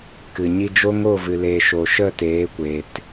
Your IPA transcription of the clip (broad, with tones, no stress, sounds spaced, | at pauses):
k ɨ˨ ɲ i˧ d͡ʒ o˦ ŋ o˦˨ v ɨ˨ l e˨ ʃ o˨ ʃ ə˦˨ t eː˨˦ kʷ eː˨ t